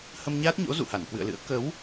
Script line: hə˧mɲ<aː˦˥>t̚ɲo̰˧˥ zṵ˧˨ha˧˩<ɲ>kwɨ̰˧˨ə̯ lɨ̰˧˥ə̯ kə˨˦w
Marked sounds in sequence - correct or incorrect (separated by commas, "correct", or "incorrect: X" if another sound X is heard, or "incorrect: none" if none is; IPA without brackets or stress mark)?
correct, incorrect: n